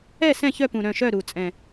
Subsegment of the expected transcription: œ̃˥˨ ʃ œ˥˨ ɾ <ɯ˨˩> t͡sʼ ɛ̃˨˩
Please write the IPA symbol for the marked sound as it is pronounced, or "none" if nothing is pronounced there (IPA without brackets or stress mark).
u˨˩